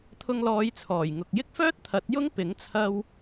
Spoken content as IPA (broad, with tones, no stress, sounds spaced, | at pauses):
t̪ʰ ʊ˧ ŋ l ɔː˨˧ j t͡sʰ ɔː˨˩ j ŋ ʊ˨ k̚ j ɪ˥ k̚ f œː˥ t̚ t̪ʰ ɐ˨˥ t̚ j ʊ˥ ŋ p ɪ˨˥ ŋ t͡sʰ ɐ˧ w